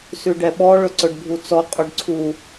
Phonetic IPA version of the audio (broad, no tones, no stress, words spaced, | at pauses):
sʉɖɛɓɔ ɭɵǀɵɖbʱut͡sɔ qʼuɖǀʰu